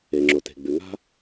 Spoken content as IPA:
e˩ŋ͡ǁo˩te̤˩ ɡ͡bʉ˩ŋa̤˥

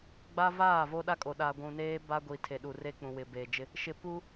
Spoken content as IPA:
ɡ͡ba˦ vaː˦˨vo˦ɗa˦kʼo˨ ɗa˨ ɡʷũ˨neː˦ ba˦ɡʷi˨ tʰe˨ɗu˨ re˦k͡pũ˨ wɪ˨beː˨d͡ʒɪ˦ | ʃɪ˨pu˦

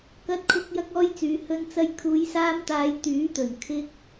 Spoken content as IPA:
kɐ˧t̚kʰʊ˧k̚ jɐ˧k̚ɔː˧jt͡syː˨ hɵ˧nt͡sɐ˧j kʰuː˨˧jsaː˧mt̪aː˨˧j t̪yː˨˥t̪ɵ˨˩n kʰɪ˧k̚

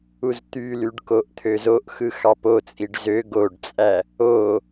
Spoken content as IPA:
uzt̪ylyɖ koʔt̪ʰøzoʔxɯ xɑpot͡sʼiɖ zø ɡoɖt͡sʼæ | o

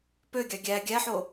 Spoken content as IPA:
pøɡʲɑ ɡʲæ ɡʲæħo

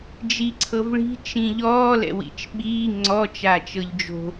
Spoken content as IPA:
d͡ʒiǀʰɤvɭi̤ t͡ʃĩʎɔː lɛ̰wḭt͡ʃɓiː ŋ͡ǀɔ t͡ʃat͡ʃɤʎd͡ʒo̤

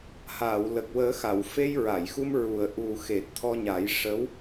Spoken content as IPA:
haː˨˩˨wlə˨˩k̚wəː˨˩˦xa˨˩˨w fe˧jɹa˨˩˨jxu˧m ɹu˨˩ə̯ʔu˨˩xe˨˩t̚ t̪ʰɔ˧ɲa˨˩˦jʂə˧˥w

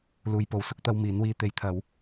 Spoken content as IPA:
luː˨jpo˨˧w sʊ˨˥k̚t̪ɐ˧w miː˨˥nwiː˧ t̪e˨˧jt̪ʰɐ˨˧w

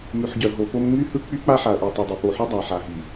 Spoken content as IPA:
mʉ˨ħɟœ˨ɦo˨po˦m ŋ͡my˦hɯ˦k͡py˦ k͡pa˦ħa˨ɐ̯ʔʉ˨ tˤo˨dˤɯ˨ po˨ħʉ˦ dˤa˨ ħa˨ɦi˨

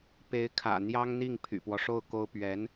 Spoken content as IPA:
pe˧˥ɪ̯kʰä̰˨˩ n̪jɑ˥ŋn̪i˥˩ŋ pʰy̰˨˩pwɔ˦ʂo˥˩ʊ̯ko˥ʊ̯ pɥɛ˧˥n

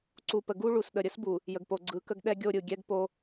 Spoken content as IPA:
ǀu˨pə˨ɡu˦ ɭu˨sɗə˨ɾʲə˦sbu˨ | jə˨ɡpo˨ ɡ͡ǀɯ˨˦kə˦ɡ ɗɛ˦ɡʲo˦˨ɾʲɯ˨ ɡʲɛ˦ɡpo˦

